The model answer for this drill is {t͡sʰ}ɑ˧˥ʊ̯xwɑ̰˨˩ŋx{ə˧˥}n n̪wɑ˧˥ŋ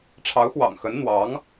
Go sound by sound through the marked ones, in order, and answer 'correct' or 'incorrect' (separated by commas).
incorrect, correct